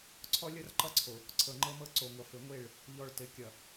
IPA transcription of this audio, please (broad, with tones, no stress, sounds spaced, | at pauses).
ǀʰ ɔ˦ lʲ ʌ˦ r ǃ ʌ˦ ǀʰ o˨ | ǀʰ ɤ˨ ŋ͡ǃ ɤ˦ m ɤ˦ ǀ o˨ ŋʷ ʌ˨ f ɘ˨ ŋʷ e˦˨ ɭ | ʎ ɔ˨ ɭ t ɘ˨ kʲ ʌ˨